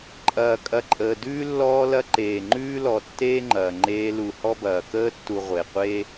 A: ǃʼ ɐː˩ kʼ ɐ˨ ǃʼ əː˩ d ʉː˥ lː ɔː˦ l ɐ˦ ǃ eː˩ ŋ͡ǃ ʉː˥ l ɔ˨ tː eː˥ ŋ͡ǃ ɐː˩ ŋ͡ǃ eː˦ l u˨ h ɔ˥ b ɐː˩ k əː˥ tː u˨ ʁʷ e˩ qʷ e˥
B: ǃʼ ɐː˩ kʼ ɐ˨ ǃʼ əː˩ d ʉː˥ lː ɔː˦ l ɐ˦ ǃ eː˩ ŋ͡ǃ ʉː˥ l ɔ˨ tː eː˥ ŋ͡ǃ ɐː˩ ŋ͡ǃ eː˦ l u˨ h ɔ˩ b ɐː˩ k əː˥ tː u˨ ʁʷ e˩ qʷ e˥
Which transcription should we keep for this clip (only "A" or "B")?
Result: A